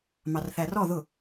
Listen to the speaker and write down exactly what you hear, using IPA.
mɑrθærɔ ðʊ

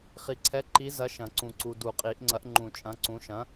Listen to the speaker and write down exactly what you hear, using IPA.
χi˨ǀʰɛ˨˥ǃi˨˥zɐ˨˥ ʃɐ̃˨˩˦ǀũ˨ǀu˨ du˨˩˦qʼi˨˩˦ʔŋ͡ǀɐ˨˥ʔ ŋ͡ǃũ˨˩˦t͡ʃʼɐ̃˨˥ǀũ˨˥ ʃɐ̃˨˥

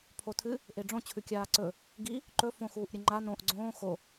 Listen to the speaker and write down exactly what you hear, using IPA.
pʰotʰɨ | ʔeɖ͡ʐõ t͡ɕʰʉkʲaːǀɵ | ɡi | ǃɵ fõ xuːʔɾʲɨŋ͡ǃa nõʔ ɡ͡ǀõː xo

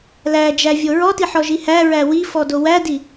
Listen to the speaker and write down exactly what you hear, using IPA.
læd͡ʒævʲo ɹɔtiħɔʒi hæɹæ wifɔdo wædi

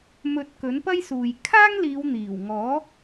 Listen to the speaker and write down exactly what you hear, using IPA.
mɵ˨t̚ kɵ˨˥npɐ˥jsuː˨j kʰaː˥ŋliː˨˧wn̪iː˨˩w ŋɔː˨˥

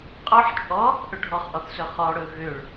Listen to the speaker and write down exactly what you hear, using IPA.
qʼɔħ t͡ʃʼɔ | ʔɵɖʱɔχʔɔθsɵ χɔɽɵ ɣøɭ

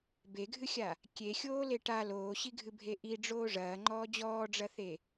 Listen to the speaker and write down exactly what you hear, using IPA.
beɡʱɨxʲa | kʲexʲoːle ʈa loːɕiɡʱɨbʱe ʔiɖ͡ʐoː ʐɐːŋ͡ǃɔː d͡ʑɔːɖ͡ʐɐθe

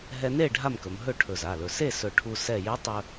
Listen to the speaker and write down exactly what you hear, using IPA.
ɦɛ˧ne˥˨ ɖʱa˥˨mkɵ˩˧m ɦɵ˥˨ʈʰɵ˧˩za˩˧˩lɵ˧˩ se˥˨ sɵ˧˩ʈʰu˧ sɛ˧˩je˧˥ tˤɵ˧

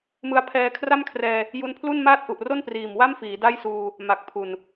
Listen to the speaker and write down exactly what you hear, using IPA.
mɯ˧a̯pʰɛː˧kʰra˥˩mkʰrɛː˧ | ju˦˥npʰlu˥˩nmaː˥˩t̚ʔu˨˩ʔ ro˥˩npriː˨˩m wa˥˩mfiː˩˦ da˥˩jsuː˧ | ma˨˩k̚ pʰu˨˩n

